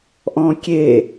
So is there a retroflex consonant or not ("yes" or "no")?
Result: no